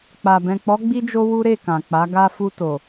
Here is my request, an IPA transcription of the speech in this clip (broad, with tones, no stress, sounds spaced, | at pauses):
k͡p a˨ b ɛ̃˨ k͡p ɔ˨˦ ɡ͡b i˧ d͡ʒ o˧ w u˦ ɾ e˦˨ k ã˨ k͡p a˨˦ ɡ a˧ f u˧ t o˨